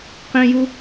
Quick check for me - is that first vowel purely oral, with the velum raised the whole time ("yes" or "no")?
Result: no